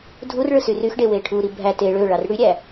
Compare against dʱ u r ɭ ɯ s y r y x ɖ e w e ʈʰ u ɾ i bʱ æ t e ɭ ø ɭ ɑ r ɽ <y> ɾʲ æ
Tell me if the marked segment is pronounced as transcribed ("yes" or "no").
yes